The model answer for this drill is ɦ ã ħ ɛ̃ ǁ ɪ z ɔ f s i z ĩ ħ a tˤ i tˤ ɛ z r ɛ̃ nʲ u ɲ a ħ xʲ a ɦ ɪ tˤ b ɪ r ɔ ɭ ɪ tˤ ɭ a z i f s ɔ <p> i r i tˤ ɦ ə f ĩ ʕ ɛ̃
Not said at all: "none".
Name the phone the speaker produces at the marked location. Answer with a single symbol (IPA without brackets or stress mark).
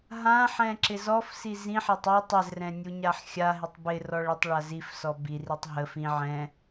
b